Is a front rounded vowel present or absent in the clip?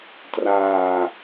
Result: absent